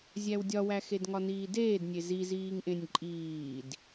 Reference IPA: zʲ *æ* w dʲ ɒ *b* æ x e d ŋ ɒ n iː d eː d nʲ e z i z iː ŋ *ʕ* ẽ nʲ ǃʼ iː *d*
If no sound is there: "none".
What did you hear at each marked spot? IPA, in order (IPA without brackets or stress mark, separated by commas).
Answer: æ, w, ʔ, d